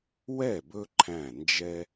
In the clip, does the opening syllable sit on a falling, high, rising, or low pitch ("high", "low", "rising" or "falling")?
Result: falling